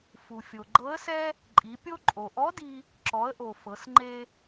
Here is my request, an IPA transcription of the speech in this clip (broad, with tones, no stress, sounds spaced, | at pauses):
f u˩ fʲ o˩ ɡ͡ǃ ɤ˧˥ ə̯ s ɛ˥ | ǃʼ i˩˧ pʲ o˥ ǃʼ o˩ ʔ ɔ˧˥ d i˧ | ǁ ɔ˩˧ ə̯ ʔ o˩ f ɤ˩˧ s ŋ͡ǃ e˧